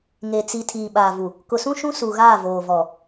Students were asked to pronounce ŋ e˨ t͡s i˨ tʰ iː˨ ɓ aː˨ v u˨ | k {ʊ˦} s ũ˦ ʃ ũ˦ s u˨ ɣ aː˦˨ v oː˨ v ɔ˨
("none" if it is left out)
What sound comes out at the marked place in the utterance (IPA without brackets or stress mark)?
ʊ˨